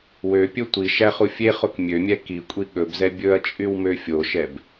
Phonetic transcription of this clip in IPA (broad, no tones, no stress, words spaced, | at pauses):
wøpʲɵ tʷi ʃæχufʲeχok mʲømʲɛ kikʷʼi ɠɵbzɛ bʲɵɐ̯t͡ʃʼyw møfʲoʃɛb